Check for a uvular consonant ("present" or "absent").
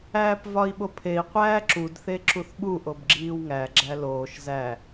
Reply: present